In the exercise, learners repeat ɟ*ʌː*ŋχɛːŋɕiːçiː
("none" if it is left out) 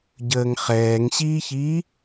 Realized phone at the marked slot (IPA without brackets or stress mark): əː